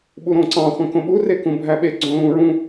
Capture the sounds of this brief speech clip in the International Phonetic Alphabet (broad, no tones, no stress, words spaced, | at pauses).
ɓuɾõǀɑ̃ χʷæ̃kõɓu rekũbʱæɓe ɡ͡ǀõlũɹũ